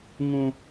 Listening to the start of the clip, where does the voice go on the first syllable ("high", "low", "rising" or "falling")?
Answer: high